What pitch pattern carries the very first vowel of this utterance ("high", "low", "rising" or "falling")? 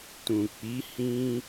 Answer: low